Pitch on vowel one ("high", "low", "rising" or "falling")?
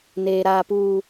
low